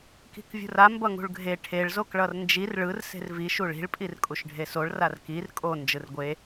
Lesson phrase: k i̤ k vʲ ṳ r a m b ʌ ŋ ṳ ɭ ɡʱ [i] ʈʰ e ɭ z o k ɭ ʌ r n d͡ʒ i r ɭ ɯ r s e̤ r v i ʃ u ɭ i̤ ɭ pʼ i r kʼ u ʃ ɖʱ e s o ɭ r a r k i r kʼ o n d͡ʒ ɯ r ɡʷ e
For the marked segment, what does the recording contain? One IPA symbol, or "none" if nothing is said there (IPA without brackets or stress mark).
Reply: e